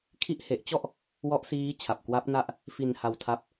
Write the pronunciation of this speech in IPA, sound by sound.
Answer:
kʰ i˦˥ ʔ h e˨˩ ʔ t͡ɕ ɔ˥˩ ʔ | w ɔ˦˥ ʔ s iː˦˥ t͡ɕʰ a˨˩ p̚ k w a˦˥ p̚ n a˥˩ ʔ | f i˧ n h a˧ w tʰ a˦˥ p̚

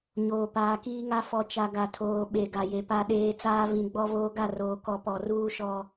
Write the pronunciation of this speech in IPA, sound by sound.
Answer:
ɲ oː˨ p aː˨ k iː˦ ŋ a˦ f ɔ˨ t͡ʃ a˨ ɡ a˨ tʰ oː˨ ɓ e˨ ɡ a˨ j e˨ p a˨ ɗ eː˨ t͡s aː˦ v ĩ˨ ɡ͡b ɔ˦ v oː˦ ɡ a˦˨ r oː˨ k ɔ˨ p ɔ˨ r uː˦ ʃ ɔ˦

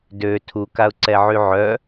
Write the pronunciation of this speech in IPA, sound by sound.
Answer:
d ø tʰ u k a ʊ̯ ǀ ɛ ʕ y ʕ œ

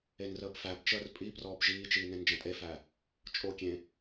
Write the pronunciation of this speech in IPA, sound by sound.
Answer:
e n r əː b f æ b t͡ʃ əː r pʼ i p r ɔː b ʒ iː t͡ʃ iː n ẽ n d͡ʒ ɐ̃ tʼ e f æ | t͡ʃʼ o kʲ ẽ

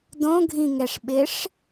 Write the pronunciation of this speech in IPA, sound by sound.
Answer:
d õ ɡʱ ĩ ŋ ɛ ʂ ɓ ɪ ʂ

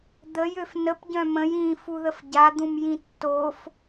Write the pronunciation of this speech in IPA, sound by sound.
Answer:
d̪ ə j ø f n ə p ɟ œ̃ m ə̃ j ĩ f u ð ə f ɟ a d̪ ũ m j ĩ tː o f

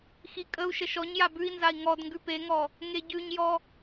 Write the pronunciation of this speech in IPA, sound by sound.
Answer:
x i kʼ ə u̯ ʃ ə ʃ ɔ ɲ j a b ʉ i̯ n z a i̯ ŋ ɔ d ŋ ɡ ʉ p e ŋ ɔ | ŋ e ɟ ʉ ɲ j ɔ

